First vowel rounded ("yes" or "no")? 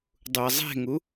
yes